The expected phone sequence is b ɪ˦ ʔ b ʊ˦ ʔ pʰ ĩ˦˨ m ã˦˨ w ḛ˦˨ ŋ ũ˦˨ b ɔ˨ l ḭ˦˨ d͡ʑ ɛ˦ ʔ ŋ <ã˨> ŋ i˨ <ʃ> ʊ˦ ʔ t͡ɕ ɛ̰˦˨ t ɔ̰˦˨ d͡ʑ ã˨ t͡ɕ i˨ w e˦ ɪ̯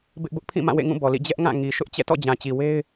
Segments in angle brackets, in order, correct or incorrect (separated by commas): incorrect, correct